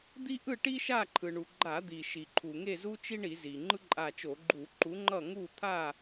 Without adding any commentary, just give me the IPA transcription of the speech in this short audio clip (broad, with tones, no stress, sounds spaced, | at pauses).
d̪ i˥ ʔ ɯ˥˨ ʈ i˥ ʃ a˥˨ ǃʰ ɯ˩ ɳ u˩ ɡ͡ǃ a˧˩˧ d̪ i˩ ʃ i˩ ǃʰ u˩ ŋ e˥˨ z u˥ t͡ʃ i˥ ɳ i˧˩˧ z i˩ ŋ͡ǃ ɯ˥ ǃʼ a˧˩ t͡ʃ o˧˩˧ ɡ͡ǃ u˧˩˧ ǃ u˨˥ ŋ͡ǃ ʌ˥˨ ŋ u˥˨ t̪ʰ a˥˨